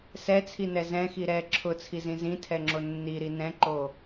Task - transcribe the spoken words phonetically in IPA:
s ɛ t͡sʰ i n ɛ z ɛ̃ x i ɾ ɛ ǁʰ ʊ t͡sʰ i z ĩ z ĩ tʰ ɛ ŋ͡ǁ o nː i ɾ i n ɛ̃ ǃ o

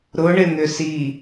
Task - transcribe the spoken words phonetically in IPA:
ɾ ʊ ɳ ɪ n̪ ʏ s i

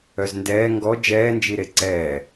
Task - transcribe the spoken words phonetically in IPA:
œ z n d ɛː ŋ ɡ ɔ d͡ʒ ɛː n d͡ʒ i ɾ e ǀ ɛː

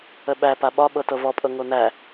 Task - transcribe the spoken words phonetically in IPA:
ə ɓ æ p a ɓ ɒ ɓ ɤ t ɤ v ɔ pʼ ɤ ŋ o n̪ æ

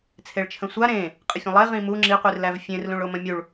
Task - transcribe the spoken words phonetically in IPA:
t͡sʰ e ɭ t͡ʃʰ ə̃ sʷ a ɾ ẽ | qʼ ə fʲ ə̃ lˠ ə e̯ ʁ ĩ m u ŋ͡ǁ i qʷ i r l æ v fʲ ẽ r l ũ ɭ o m ə̃ mʲ u ɭ

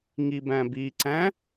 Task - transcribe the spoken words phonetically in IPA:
ŋ i b æ̃ b i ǀ æ̃

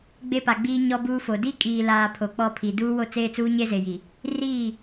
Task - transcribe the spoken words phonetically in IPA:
ɡ͡b e˦ p a˨ ɡ͡b iː˦ ɲ ɔ˦ b uː˦ f o˨ d i˦ kʼ iː˨ l aː˨ pʰ o˨ k͡p ɔ˦˨ pʰ i˨ d uː˦ w o˦ t͡s eː˦ t͡s uː˦ ɲ e˦ z e˨ j i˨ | r iː˦˨

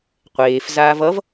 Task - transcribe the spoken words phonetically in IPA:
qʷ eː f z aː v ʌ v

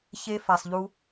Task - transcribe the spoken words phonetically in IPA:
ç e˧ f a˨ sˤ ʎ u˧

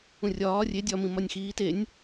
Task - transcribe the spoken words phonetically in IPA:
ũ rʲ ɒː rʲ e dʲ ɒ m ĩ m ɒ nʲ x iː t e nʲ

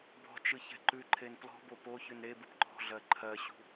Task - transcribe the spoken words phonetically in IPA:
b ɔ̤ t͡ʃ ɯ ç ɛ̤ ǃ ʉ ǃʰ e n p l ɔ̤ b o p o ç ʉ n ɾ e b ɯ p ǃ ɔ̤ ɮ ɜ ǃʰ ɜ ɕ ṳ

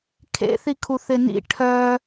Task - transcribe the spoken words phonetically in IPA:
kʰ ḛ θ i kʰ u θ ɪ n ḭ ʈʰ œ

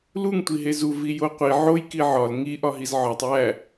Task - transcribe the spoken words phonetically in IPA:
l u ŋ tʷ i ɦ e z u v i j o qʷ i ʕ o j k i ʕ ɒ l ŋ i ʔ ɒ ɦ i z ʕ ɒ tˤ j æ

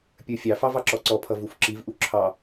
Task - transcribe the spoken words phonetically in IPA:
pʲ ə˞ fʲ ɑ f ɑ v ɑ ǁ ɔ ǀ ɔ pʰ ʌ v u f ǁ i v ʔ u ǁʰ ɑ

